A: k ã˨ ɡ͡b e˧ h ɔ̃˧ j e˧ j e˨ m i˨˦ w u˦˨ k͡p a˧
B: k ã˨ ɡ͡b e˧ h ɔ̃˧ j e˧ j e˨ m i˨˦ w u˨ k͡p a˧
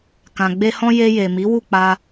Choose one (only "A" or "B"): A